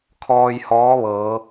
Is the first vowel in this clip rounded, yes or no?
yes